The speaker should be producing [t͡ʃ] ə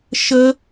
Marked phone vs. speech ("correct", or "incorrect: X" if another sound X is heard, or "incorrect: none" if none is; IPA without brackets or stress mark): incorrect: ʃ